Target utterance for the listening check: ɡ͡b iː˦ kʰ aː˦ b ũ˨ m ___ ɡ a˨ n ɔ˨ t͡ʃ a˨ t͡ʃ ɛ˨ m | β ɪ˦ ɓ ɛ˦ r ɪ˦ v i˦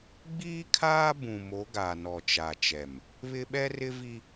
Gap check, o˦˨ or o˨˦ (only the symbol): o˨˦